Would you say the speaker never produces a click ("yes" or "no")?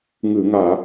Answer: yes